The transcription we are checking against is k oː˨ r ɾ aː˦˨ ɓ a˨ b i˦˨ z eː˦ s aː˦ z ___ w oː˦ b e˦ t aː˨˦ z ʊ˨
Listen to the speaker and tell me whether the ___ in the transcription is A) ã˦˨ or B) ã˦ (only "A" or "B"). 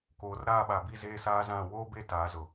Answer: A